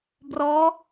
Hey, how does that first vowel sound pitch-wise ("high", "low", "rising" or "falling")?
rising